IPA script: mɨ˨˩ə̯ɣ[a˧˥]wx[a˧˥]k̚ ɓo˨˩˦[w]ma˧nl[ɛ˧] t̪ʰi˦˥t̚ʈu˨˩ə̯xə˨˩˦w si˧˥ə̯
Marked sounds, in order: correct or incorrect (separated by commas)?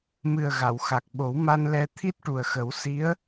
incorrect, incorrect, correct, correct